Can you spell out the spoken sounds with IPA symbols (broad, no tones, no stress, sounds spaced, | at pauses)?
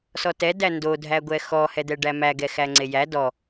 s ɔ t ɛ d æ n d o dʱ æ ɡʷ ɛ x ɔ h ɛ d̪ ɛ ɖ æ m æ ɡ ɛ x æ ŋ͡ǀ e j æ d ɔ